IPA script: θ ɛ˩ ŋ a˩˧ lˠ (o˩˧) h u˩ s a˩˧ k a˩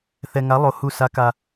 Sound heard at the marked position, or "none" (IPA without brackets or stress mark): o˩